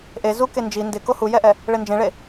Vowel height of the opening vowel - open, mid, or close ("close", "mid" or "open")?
mid